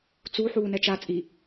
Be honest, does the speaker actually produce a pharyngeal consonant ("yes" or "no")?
yes